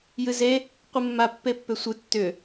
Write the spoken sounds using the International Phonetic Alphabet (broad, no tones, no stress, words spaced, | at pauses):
jɨze | qʷɨmːa pːepːʏsʷɨ tːʏ